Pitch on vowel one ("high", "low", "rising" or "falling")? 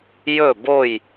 falling